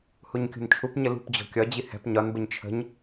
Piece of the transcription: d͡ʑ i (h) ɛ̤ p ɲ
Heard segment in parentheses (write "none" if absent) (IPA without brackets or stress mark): h